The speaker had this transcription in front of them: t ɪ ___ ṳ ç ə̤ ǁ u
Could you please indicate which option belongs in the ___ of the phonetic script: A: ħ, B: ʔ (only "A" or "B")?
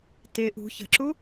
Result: B